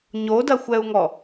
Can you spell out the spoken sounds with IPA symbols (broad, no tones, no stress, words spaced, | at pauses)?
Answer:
ɲodɐxʷɛu̯ŋɔ